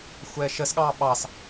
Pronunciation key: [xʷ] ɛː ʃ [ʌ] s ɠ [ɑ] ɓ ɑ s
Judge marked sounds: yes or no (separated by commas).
yes, no, no